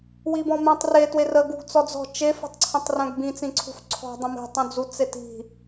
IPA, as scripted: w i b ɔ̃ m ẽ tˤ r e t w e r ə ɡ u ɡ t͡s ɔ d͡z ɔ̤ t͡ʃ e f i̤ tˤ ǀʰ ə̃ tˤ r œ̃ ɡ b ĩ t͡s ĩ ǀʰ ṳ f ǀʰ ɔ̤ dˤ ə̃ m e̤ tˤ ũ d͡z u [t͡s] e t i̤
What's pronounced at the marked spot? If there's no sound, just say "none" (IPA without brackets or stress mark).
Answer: t͡s